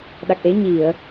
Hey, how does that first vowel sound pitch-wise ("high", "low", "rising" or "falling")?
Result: low